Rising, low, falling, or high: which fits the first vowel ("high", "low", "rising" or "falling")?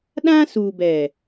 high